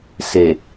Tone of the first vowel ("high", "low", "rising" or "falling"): low